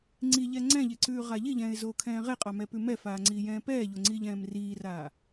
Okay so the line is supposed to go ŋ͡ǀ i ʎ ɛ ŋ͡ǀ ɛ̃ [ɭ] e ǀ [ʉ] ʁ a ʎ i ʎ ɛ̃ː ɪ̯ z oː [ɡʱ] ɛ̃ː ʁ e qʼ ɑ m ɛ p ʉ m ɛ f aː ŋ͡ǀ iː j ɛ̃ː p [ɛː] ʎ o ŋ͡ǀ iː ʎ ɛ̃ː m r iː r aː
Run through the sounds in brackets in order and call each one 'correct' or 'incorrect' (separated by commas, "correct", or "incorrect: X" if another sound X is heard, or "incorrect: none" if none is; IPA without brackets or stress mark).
incorrect: ʎ, incorrect: ʉː, incorrect: kʰ, correct